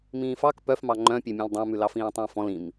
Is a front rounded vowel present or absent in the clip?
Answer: present